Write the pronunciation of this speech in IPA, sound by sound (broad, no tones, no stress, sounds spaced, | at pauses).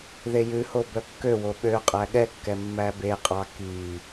ð e j ʉ h o b œ kː ø w o ɓ ø qʼ æ ɠ ɛ kː ɛ mː æ b e qʼ ɑ k i